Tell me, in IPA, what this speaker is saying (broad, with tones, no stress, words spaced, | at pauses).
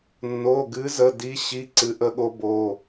nːo˩˧˩ɡɨ˨˦zə˩˧˩ di˨˦ɕi˩˧˩ ǀɨ˨˦ʔə˨˦ɠo˨˦ bo˩˧˩